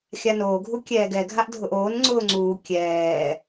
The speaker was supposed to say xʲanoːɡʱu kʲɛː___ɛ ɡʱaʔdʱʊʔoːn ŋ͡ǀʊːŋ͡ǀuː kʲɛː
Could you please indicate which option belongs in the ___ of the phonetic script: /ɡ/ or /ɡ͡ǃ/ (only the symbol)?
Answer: ɡ